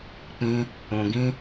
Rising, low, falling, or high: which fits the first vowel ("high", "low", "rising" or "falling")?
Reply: high